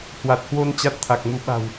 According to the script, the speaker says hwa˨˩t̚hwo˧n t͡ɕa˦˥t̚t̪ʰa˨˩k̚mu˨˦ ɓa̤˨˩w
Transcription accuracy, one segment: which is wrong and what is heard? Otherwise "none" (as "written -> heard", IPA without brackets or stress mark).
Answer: none